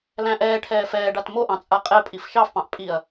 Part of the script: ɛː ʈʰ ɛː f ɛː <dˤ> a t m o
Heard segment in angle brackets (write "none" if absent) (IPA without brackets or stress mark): ɖ